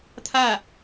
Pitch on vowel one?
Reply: falling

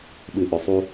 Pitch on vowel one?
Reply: low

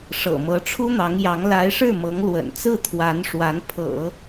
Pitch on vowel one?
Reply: low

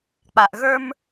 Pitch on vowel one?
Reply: low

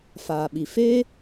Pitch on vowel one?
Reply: low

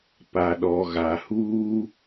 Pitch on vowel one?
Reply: low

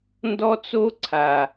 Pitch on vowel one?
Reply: high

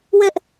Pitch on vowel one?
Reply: high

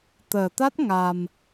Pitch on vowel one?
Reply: low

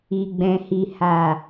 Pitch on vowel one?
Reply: low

